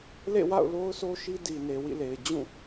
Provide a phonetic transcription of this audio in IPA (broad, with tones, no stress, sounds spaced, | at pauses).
l ḛ˦˨ w a̰˦˨ ʊ̯ l o˦ ʊ̯ s o˦ ʃ i˦ d i˨ n e˨ w ḭ˦˨ l e˨ ɪ̯ d͡ʑ ũ˦˨